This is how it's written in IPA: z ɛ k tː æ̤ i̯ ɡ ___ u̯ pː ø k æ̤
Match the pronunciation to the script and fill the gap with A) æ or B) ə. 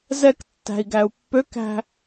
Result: A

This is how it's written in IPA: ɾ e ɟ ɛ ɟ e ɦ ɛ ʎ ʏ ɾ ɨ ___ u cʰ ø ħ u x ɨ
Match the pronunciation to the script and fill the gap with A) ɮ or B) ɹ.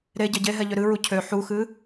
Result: B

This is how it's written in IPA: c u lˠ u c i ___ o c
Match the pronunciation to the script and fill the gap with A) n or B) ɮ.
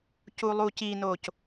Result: A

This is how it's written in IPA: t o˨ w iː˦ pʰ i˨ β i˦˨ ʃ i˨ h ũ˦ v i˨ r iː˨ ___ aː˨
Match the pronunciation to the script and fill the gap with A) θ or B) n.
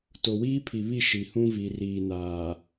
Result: B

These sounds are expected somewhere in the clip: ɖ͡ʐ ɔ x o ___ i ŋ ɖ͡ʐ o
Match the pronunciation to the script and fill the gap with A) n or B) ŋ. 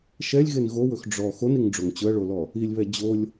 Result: A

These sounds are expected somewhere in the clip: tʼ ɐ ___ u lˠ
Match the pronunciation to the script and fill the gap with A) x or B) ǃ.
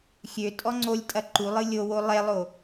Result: B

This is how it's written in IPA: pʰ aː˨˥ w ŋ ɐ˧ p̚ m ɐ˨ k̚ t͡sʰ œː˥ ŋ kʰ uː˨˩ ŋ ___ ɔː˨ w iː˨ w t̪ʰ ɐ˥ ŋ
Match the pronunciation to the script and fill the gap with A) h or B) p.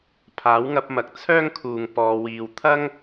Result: B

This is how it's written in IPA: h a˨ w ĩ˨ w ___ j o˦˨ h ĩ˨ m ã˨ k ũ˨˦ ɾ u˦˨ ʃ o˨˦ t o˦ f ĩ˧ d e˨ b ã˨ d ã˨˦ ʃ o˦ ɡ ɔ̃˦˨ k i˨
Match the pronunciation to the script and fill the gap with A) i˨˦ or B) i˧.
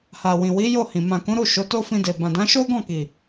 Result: A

